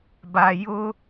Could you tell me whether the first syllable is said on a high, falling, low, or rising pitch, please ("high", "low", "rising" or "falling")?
low